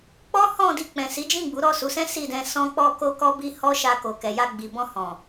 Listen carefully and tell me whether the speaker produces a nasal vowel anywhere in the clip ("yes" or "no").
yes